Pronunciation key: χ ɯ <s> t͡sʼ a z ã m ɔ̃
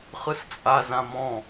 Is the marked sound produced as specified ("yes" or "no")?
yes